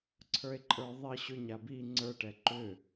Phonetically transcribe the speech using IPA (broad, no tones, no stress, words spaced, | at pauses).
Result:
ǀʰə˞e̯ǃʼə˞ðˤi ɕʏ ɲabi ŋ͡ǀə˞ʈɛ ǃʏ